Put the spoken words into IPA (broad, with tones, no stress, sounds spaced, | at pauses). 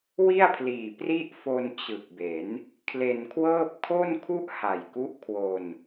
w i˥˩ a̯ pʰ l iː˨˩ p r i˥˩ ʔ f o˧ n t͡ɕ ɯ˨˩ k̚ b e˩˦ n | kʰ l e˧ n kʰ w ɤː˥˩ p̚ kʰ o˥˩ n kʰ u˥˩ ʔ h a˨˩ j k u˦˥ ʔ kʰ w o˧ n